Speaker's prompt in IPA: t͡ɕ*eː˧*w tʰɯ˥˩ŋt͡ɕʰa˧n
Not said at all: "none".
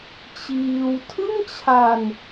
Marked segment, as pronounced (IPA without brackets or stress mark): iː˧